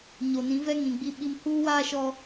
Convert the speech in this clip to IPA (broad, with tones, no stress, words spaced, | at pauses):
ɲo˨nĩ˨˦ vɛ˦ŋĩ˨ ɡ͡bi˦ɓi˦m huː˦waː˦ʃɔ˦